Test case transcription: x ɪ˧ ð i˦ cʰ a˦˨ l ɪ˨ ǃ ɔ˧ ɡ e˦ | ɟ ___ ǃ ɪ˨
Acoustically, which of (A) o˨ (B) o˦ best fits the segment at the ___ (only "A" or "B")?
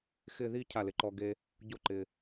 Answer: B